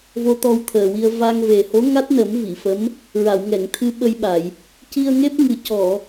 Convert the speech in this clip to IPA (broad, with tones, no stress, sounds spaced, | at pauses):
v o˧ t̪ ɔ˧ w t̪ʰ əː˨˩ w i˧ ə̯ v a˧ ŋ v e˨˩ h o˧˥ ŋ a˦˥ t̚ n ə˨˩˦ m v i˨˩˨ f ə˧˥ m | ɹ a˨˩˨ w ŋ ɛ˨˩˨ ŋ t̪ʰ ɨ˧ ɓ ə˧ j ɓ a˨˩˨ j | c i˧ ə̯ ŋ e˦˥ p̚ ŋ ɨ˨˩ c ɔ˨˩˨